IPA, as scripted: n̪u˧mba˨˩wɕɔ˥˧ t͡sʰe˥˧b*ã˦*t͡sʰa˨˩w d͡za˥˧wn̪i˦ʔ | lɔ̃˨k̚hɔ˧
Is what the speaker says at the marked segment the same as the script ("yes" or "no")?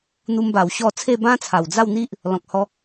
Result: yes